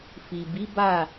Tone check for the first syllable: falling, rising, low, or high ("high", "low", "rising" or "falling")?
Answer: low